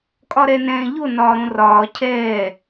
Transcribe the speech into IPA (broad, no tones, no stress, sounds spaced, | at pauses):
kʼ ɒ ɾ ɛ n ɛ̃ː ʎ o n ɒː ɾ õ r ɒː cʰ ɛː